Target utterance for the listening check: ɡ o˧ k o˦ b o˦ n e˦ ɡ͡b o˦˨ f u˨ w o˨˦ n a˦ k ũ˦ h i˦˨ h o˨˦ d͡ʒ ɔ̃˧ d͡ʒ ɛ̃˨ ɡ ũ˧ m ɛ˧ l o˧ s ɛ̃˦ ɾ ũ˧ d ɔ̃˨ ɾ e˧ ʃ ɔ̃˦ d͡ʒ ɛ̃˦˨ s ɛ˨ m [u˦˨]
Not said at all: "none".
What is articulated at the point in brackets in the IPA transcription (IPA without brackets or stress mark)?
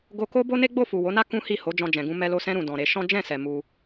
u˧